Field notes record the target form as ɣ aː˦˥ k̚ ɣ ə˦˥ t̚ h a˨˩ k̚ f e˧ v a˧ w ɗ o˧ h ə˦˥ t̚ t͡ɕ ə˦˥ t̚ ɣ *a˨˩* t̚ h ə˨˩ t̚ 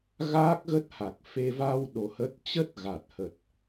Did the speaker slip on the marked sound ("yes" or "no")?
no